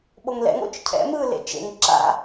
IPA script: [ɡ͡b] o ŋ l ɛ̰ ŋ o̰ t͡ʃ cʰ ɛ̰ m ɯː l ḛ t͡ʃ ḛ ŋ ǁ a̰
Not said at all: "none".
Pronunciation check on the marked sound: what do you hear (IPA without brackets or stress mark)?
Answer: ɓ